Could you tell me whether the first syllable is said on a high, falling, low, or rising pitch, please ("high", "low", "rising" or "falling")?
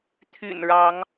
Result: low